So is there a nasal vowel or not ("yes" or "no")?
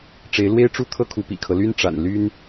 no